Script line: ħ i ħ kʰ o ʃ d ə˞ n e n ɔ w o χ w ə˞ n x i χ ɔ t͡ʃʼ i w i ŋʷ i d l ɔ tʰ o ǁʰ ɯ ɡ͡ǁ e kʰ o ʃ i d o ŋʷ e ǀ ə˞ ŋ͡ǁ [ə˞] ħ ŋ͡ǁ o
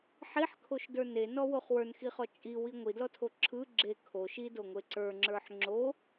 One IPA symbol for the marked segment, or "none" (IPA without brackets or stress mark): ə˞